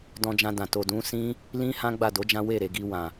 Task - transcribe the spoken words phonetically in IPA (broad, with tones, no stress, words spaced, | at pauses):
dɔ̃˧d͡ʒã˧dã˨ to˨dũ˨˦ sĩ˦ | lĩ˦hã˦ ɡ͡ba˦˨do˨˦d͡ʒã˦ we˦˨ɾe˨ɡi˧ wã˨